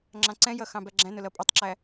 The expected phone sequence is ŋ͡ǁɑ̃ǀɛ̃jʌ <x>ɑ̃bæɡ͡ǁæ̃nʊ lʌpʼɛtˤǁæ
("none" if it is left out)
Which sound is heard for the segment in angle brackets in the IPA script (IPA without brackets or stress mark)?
x